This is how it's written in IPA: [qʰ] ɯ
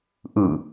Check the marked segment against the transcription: incorrect: ʔ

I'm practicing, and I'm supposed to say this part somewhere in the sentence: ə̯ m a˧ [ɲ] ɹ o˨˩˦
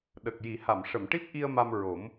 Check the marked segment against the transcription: incorrect: m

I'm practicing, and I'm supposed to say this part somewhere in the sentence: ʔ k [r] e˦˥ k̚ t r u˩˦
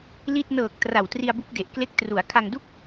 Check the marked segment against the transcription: incorrect: l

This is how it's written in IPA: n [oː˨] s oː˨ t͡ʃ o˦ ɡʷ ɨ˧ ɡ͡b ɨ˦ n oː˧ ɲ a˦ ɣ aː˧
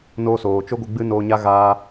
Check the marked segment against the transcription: incorrect: oː˧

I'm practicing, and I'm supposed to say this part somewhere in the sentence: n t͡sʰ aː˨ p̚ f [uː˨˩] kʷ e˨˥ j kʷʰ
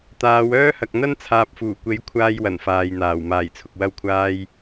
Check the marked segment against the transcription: correct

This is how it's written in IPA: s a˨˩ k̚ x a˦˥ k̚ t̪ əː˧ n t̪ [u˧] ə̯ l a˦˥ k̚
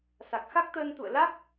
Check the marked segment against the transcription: incorrect: ṵ˧˨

